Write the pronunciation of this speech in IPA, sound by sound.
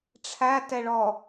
ʈ͡ʂʰ æ t ɛ ɭ ɔ

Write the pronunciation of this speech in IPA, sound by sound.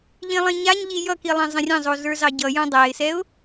ʎ ĩ lˠ ĩ ɲ a ɲ ʎ i j ʌ k i lˠ ɛ̃ zˤ ə̃ rʲ ə̃ zˤ o z ə˞ z ɑ ɟ ʌ j õ dˤ æ ɪ̯ s ɛ ʊ̯

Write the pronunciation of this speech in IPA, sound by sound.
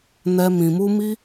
n ɛ˧ m ĩ˧ m u˦ m i˦

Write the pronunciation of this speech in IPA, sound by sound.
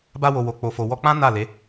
b a˧ w o˨ w o˨ k͡p o˨ f o˨ w ɔ˧ k͡p ã˦ n a˦˨ l e˨˦

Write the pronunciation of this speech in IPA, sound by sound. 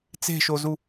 t͡s e̤ ʃ o z u

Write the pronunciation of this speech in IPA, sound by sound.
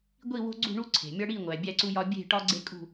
ɡʷ i˦˨ w o̤˦ ɡ͡ǀ ṳ˦˨ ɳ u˦ ǀʰ e̤˩ mʲ ɒ˦ ɽ i˦˨ ŋʷ æ˩ bʲ æ˦ ǀ u˦ j ɒ˦ bʲ e̤˦˨ ʈ ɒ˦ ɡ͡ǀ e˦ kʼ ṳ˦˨

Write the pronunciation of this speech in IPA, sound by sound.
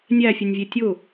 nʲ æ fʲ ʊ nʲ vʲ e tʲ ʊ

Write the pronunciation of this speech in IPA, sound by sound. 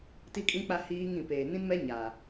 t i˦ kʼ ĩ˦ k͡p a˦ h iː˦ ŋ ĩ˨ p eː˨ n ĩ˦ n m ɛ˦ ɲ a˨

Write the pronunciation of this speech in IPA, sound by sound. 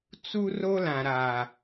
t͡s u˦ r o˦ l ã˨ ɾ a˨

